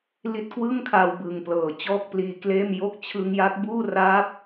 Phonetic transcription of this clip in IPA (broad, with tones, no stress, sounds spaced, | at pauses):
l i˦˥ t̚ k w ɯ˥˩ ŋ kʰ a˧ w b ɯ˨˩ ŋ p l ɤː˨˩ t͡ɕ ɔː˥˩ k̚ p l iː˧ k l eː˥˩ m j o˦˥ k̚ t͡ɕʰ ɯ˧ ŋ j a˦˥ k̚ b uː˥˩ r aː˦˥ p̚